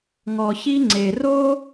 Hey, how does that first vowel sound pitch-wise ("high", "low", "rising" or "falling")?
low